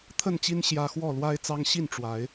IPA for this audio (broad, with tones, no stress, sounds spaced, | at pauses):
t̪ʰ ə˥˨ n t͡ɕ i˦ n ɕ j ä˦ x w ɔ˥˨ l w a˦ ɪ̯ t͡s ɑ˦ ŋ ɕ i˥˨ n ʈ͡ʂ w a˨˦ ɪ̯